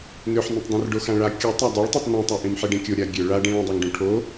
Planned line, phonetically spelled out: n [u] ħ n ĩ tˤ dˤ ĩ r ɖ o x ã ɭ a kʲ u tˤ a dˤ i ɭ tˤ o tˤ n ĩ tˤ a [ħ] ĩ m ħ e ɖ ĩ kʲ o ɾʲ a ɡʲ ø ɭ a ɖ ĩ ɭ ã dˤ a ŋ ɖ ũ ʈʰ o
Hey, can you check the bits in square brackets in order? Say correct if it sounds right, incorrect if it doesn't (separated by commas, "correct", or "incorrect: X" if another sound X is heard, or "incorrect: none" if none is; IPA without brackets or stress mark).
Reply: incorrect: ø, incorrect: ʔ